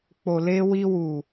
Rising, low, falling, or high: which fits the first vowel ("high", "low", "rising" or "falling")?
low